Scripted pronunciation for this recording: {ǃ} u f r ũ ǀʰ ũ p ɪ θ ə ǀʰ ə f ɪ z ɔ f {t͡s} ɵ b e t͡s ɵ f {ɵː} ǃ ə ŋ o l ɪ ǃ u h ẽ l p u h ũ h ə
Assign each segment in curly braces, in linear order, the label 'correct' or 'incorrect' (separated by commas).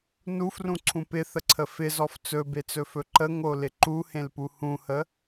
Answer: incorrect, correct, incorrect